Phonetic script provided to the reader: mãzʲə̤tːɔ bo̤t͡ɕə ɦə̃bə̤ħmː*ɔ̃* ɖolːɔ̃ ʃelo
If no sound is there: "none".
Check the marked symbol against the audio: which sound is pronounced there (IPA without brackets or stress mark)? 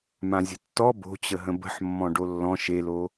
ɔ̃